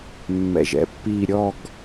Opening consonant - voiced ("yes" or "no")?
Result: yes